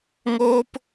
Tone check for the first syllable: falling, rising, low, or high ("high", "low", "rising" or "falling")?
high